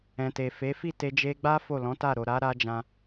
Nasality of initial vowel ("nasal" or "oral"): nasal